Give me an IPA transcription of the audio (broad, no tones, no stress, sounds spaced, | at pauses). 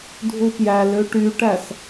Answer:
dʱ u p j æ l ø ʈ y ʈ æ s